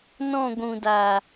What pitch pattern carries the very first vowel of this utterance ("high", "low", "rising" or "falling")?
falling